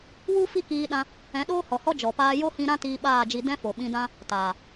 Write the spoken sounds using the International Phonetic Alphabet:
wu˦ fi˦kiː˧ɗã˧ | ɛ̃˨˦ɗoː˦hɔ˨hɔ˦ d͡ʒɔ˨paː˧ jo˦hĩ˧ ɾã˦ tiː˧ɓaː˦˨d͡ʒi˧ dɛ̃˦fo˨ɓĩ˧dã˦ | taː˨

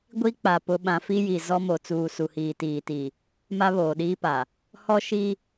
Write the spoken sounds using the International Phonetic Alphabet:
ɡʷi˦k͡pa˨ pʊ˨ ɓã˨ fi˦ji˨ zɔ˦mo˨ t͡suː˨ su˨hiː˨tiː˨ ti˨ | ma˦βoː˨ɗiː˦pa˨ | hɔ˦ʃi˦

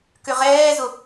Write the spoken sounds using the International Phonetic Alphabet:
kʏʁɛːzʊ

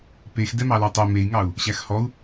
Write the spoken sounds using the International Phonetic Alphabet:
pex dɛmɑlɑtˤɛ mei̯ŋɑu̯ | ɕæxhɔu̯

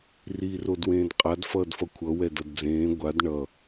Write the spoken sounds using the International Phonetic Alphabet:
riːrodwẽːdqʼad fʌːdfʌkʷʰʌ wɛdʌdd͡zẽː ɡʷad ɳʌ

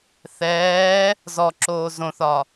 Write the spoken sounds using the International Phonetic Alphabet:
θɛː | zɔǁoː zõθɒ

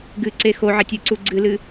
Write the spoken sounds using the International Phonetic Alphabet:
ɡɨǀe xoʕetʲɨǀu ɡ͡ǀɨlɨ

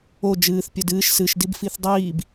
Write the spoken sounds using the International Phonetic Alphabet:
o d͡ʒɨːθ pʲodɨːʃ sɨʃ dibfiθdˤiːb

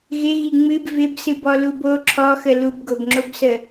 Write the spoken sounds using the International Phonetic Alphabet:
ɣɪɣi ŋ͡mɨb vɪbsɨbɔlub o ǁʰɔxə lubɡobŋ͡ǁobsə

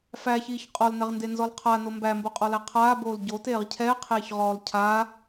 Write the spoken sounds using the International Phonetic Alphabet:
fæçiːç qʼɔlnɛʁndenzɔl qʰano mbæmboqʼɔlæ qʰaːboːl ɟoteːʁ cʰɛqʰeːçʁɔːl cʰaː

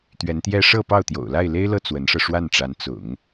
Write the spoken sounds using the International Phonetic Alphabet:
t̪ɥɛ˧˥nt̪jɛ˥ ʂɤ˥˧ pɑ˥˩ʊ̯t̪jo̰˨˩ʊ̯ la˥˩ɪ̯le˥ɪ̯lɤ˥˩ t͡swə˧˥nʂɤ˧ ʂwa˥˩nʈ͡ʂa˧˥n t͡sʊ̰˨˩˦ŋ

